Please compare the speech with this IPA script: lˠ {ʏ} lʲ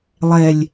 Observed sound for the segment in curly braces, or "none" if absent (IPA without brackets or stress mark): ɛ